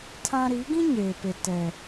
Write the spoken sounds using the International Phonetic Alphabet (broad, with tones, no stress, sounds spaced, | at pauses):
tʰ ã˦ ɾ i˨˦ ɡ ĩ˦ ɲ eː˨ p e˨ t ɛ˨